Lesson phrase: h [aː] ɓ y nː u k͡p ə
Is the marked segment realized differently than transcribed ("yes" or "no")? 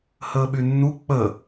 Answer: yes